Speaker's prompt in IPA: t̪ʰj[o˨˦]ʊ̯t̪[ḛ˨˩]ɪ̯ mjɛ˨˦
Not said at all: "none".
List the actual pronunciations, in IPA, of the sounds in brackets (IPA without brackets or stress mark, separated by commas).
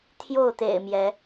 o˥˨, ḛ˨˩